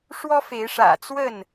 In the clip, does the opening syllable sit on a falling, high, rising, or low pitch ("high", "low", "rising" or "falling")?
high